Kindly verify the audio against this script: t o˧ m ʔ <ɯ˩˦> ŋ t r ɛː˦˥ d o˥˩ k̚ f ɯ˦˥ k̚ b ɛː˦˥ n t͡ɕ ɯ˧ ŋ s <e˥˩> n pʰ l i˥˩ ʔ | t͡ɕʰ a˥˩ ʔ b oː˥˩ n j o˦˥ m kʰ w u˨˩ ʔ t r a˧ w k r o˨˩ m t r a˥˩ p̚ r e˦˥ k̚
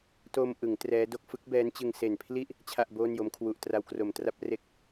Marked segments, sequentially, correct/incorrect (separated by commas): correct, incorrect